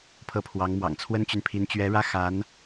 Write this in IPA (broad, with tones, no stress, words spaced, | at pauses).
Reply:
pʰɤ˥˩pʰwɑ˧˥ŋmwɑ̰˨˩ŋ t͡sʰwə˥nt͡ɕy˨npʰi˧˥n t͡ɕɥɛ˧˥ɻä˥˩ xa˧˥n